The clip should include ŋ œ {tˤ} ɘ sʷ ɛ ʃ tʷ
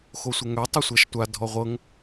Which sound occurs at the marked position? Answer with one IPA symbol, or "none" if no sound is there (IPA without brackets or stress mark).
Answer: tˤ